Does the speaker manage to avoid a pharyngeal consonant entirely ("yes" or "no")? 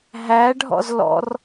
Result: yes